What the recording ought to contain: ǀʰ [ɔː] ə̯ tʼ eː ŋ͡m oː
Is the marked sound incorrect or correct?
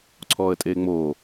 correct